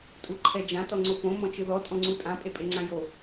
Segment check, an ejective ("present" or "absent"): present